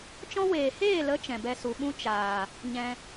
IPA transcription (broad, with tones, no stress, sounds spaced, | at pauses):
t͡ʃ ɔ̃˦ w eː˨ h eː˦˨ l ə˨˦ t͡ʃ ɛ̃˨ b ɛ˧ s u˨ ɓ ũ˦ t͡ʃ aː˨ | ɲ ɛ̃˧